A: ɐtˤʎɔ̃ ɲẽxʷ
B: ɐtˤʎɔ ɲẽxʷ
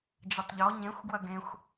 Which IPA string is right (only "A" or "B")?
B